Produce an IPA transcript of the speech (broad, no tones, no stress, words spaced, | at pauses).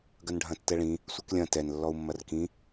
ɡɐnɖʱɐ̃tːɛɭĩ | sʷɛklʲɐ̃ tɛn lːɔu̯mːɐrkĩ